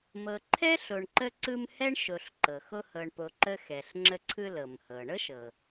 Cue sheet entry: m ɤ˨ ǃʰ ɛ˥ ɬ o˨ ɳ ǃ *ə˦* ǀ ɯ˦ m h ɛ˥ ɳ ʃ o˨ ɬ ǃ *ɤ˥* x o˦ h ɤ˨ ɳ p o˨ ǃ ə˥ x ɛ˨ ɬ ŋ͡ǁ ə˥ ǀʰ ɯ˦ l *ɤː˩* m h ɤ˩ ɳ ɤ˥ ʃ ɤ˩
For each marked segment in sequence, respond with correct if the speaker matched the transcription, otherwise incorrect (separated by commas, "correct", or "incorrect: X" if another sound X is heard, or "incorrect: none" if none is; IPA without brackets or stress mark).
correct, incorrect: ɤ˩, incorrect: ɤ˩